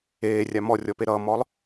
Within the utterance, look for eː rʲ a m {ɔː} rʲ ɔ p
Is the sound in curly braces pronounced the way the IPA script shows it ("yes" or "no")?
no